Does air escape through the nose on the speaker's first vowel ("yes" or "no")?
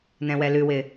yes